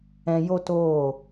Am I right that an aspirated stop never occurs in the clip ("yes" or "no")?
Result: yes